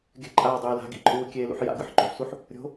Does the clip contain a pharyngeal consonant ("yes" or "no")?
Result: yes